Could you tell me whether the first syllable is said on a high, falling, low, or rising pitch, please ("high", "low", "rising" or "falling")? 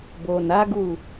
low